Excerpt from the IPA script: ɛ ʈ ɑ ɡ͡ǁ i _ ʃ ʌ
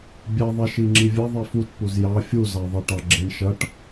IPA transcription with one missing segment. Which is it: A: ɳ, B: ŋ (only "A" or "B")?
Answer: A